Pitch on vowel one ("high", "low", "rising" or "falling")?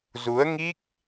rising